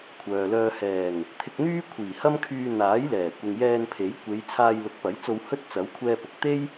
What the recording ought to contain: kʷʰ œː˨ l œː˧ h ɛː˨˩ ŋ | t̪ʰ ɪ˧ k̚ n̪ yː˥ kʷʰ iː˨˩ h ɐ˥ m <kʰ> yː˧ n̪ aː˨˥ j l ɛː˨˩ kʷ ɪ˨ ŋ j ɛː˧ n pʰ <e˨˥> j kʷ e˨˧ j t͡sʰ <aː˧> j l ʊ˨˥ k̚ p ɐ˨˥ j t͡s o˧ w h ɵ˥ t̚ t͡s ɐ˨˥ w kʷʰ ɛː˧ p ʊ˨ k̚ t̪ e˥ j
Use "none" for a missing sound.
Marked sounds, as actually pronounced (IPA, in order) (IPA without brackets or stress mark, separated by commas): kʰ, e˨˥, aː˧